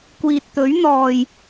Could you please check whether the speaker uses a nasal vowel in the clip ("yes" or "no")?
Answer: no